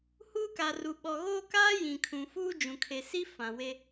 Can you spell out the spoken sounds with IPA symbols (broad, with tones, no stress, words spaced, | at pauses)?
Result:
huː˦ka˨ru˨ ɓɔ˨ɣoː˦kaː˦ jĩ˨kʰũ˨ fuː˦d͡ʒũ˨kʰe˨si˦ fã˨we˦